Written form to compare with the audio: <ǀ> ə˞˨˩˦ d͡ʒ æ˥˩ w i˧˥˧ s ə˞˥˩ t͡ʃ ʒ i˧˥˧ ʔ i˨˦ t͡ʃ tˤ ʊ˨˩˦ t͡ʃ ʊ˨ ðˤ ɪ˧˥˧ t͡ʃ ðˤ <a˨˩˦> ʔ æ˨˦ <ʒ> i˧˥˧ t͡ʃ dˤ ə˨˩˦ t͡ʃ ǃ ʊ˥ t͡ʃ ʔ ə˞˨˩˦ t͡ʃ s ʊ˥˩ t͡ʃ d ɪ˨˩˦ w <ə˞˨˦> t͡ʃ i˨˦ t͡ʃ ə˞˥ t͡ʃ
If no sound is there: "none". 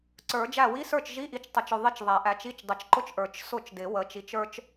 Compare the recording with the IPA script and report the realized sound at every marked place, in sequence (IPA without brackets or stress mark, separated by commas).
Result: ǀ, æ˨˩˦, t͡ʃ, ə˨˦